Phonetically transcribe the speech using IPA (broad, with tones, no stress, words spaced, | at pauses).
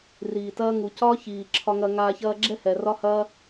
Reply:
riː˨tɐː˦ ŋu˨ cɒ˦ çiː˨ǁʰɒ˧ŋɐ˧ ŋaː˧ çɐː˧ɡ͡ǁɛ˦hɛ˨ rɒ˦hɐː˦